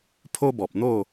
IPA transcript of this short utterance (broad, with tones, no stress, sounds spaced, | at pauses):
pʰ o˦ b ɔ˨ p̚ n̪ o˥˧